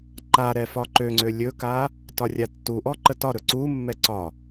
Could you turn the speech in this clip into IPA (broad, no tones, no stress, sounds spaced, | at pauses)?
ǃ a ɾ ɛ f ɒ ǃ ø ŋ͡ǀ ø lʲ ɵ k a | t ɒ rʲ a tː u ʔ ɔ ǃ ə t ɒ ɾ ɵ ǀ u mː ɛ ǀ ɒ